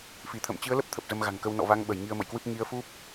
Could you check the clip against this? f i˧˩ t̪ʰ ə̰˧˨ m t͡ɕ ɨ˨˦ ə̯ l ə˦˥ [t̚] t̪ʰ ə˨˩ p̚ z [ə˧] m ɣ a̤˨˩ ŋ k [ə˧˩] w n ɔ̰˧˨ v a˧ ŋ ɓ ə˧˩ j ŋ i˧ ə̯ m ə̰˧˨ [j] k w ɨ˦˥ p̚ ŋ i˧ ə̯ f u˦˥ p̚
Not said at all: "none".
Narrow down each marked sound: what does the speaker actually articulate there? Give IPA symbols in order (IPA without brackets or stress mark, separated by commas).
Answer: p̚, ə˧, ə˧, j